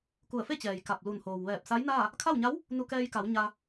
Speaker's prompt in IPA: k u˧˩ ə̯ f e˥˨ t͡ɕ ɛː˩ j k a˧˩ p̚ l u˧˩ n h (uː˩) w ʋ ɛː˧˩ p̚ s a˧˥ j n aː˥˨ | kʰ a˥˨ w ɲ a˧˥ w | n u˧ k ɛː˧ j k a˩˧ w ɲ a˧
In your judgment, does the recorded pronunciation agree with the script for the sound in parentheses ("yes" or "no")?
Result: no